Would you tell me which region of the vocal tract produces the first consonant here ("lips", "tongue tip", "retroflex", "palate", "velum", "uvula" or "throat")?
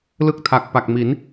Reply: tongue tip